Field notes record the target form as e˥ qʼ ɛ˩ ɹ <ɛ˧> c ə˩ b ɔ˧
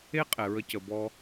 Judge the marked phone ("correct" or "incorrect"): incorrect